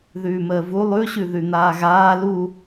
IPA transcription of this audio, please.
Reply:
ð ʉː m əː v u lˠ ʉ ɕ ʉ ð ʉ n̪ aː ɣ aː l u

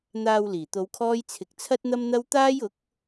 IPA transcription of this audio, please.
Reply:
n̪ aː˨ w l iː˨˩ t̪ o˨˧ w kʰ ɔː˧ j t͡sʰ ɪ˨ k̚ t͡sʰ ɐ˥ t̚ n̪ ɐ˥ m n̪ ɐ˥ w t̪ aː˥ j ʊ˨˥ k̚

